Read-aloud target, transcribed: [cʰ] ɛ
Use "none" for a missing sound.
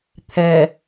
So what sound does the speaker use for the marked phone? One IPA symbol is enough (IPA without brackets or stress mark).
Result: t̪ʰ